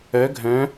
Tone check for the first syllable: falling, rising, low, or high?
rising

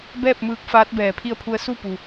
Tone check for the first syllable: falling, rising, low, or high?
falling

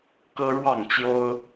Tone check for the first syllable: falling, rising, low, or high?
high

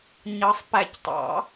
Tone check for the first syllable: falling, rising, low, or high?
low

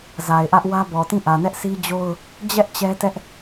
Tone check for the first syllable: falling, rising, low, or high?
low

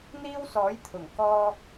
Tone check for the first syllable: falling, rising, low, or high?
high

